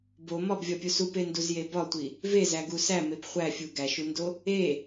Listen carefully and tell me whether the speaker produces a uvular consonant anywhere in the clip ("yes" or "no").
yes